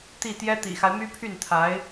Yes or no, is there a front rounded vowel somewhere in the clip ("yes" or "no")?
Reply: yes